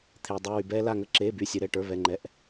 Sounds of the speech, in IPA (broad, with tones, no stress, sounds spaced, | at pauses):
t̪ʰ eː˩ dˤ ɯ˩˧˩ w y˩ b ɛː˦ l a˧˩ ŋ ə˧˩ ǁ eː˩˧˩ b y˩˧˩ sʲ ɯ˩ ɾ ɛ˥˩ ʈ ə˞˩˧˩ β ɛ˩˧˩ ŋ͡ǃ ɛ˩˧˩ ʔ